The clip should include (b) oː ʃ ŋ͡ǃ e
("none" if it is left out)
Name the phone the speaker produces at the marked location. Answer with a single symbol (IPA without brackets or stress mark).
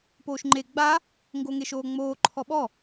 p